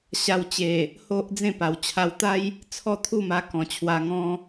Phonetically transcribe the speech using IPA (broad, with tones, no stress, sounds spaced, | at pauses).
ɕ a˧ w t͡ɕ e˨˩ | h o˦ ʔ d͡z ẽ˥˧ p a˨˩ w t͡ɕʰ a˧ w t̪ a˦ j | t͡sʰ ɔ˥˧ t̪ʰ u˥˧ m a˧ k ɔ̃˨˩ t͡ɕʰ w a˧ ŋ ɔ̃˦